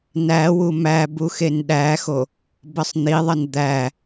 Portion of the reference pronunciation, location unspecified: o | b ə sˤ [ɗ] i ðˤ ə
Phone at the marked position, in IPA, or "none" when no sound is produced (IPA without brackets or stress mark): n̪